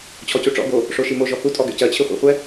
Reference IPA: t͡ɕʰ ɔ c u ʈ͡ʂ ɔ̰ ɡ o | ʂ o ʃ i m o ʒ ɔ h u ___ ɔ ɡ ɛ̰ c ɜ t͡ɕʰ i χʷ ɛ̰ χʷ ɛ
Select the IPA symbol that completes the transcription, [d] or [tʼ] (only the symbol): tʼ